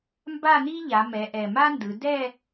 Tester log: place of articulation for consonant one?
labial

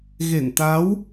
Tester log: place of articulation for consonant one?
velar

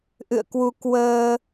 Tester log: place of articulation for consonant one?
glottal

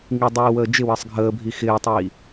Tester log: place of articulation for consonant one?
velar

